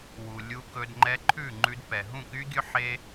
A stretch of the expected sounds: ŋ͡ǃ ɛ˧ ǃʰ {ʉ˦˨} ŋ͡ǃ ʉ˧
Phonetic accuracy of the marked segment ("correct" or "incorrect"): correct